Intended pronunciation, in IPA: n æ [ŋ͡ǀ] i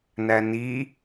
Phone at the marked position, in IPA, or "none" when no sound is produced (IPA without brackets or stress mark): n